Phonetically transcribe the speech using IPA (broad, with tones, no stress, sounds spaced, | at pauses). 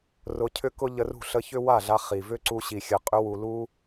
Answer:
r ʊ˧ cʰ ʏ˦ k ʊ˦ ʎ ə˧ r ṳ˦˨ ɬ ə˧ ç ʏ˦ w a˦˨ ɮ a˧ χ i˨ v ʏ˦ ǀ u˧ ɕ i˨ xʲ ə˨ qʼ ʏ˧ w u˨ l u˧